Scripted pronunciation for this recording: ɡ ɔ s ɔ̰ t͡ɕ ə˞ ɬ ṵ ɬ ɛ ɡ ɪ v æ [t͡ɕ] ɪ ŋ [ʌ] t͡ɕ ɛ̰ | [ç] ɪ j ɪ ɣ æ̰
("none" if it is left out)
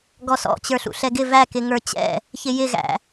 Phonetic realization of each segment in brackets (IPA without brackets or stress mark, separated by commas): k, ə˞, ç